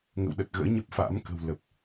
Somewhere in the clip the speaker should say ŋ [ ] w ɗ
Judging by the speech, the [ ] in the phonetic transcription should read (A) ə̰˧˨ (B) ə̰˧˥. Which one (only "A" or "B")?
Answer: A